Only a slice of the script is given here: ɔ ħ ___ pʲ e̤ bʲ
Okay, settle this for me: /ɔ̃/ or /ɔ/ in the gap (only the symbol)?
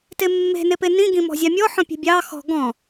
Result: ɔ̃